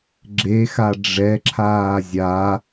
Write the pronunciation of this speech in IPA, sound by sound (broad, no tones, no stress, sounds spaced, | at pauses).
ɡ͡ǁ e x a ɖ͡ʐ ɛ ǁʰ aː zʲ a